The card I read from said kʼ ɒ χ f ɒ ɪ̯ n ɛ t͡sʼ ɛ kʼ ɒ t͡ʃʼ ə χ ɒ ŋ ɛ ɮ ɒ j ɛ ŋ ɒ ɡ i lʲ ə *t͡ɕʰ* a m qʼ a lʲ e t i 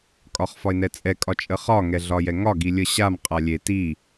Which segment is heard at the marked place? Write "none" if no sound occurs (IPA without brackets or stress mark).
ɕ